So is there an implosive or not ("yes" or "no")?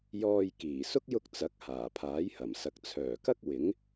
no